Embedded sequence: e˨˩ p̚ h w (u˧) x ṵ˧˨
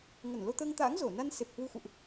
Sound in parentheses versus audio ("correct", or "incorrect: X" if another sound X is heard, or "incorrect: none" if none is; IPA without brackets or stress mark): correct